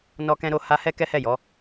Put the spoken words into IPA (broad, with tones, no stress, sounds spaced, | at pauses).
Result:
n ɔ˦ k ɛ̃˦ ɾ o˦ h a˧ h ɛ˦ k ɛ˦ h ɛ˦˨ j ɔ˨˦